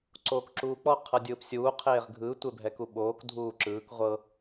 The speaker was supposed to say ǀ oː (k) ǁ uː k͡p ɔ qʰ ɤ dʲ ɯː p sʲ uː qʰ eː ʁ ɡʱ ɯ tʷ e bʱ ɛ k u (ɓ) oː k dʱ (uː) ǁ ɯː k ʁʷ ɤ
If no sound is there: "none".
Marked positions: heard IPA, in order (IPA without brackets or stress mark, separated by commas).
k, ɓ, uː